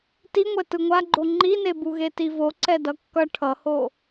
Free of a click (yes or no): no